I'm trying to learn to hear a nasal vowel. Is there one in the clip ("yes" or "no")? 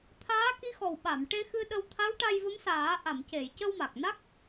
no